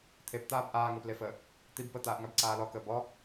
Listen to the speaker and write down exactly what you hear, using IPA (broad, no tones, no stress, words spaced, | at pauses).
t̪ʰept̪aːb ʔaːŋəːplefəː | t̪ib pət̪aːʔŋabǀaː lɔkəː bɔ